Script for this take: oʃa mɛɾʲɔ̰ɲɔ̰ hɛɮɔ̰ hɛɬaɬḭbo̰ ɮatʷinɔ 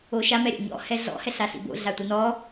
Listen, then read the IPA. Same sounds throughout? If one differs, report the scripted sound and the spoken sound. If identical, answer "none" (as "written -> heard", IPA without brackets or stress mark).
none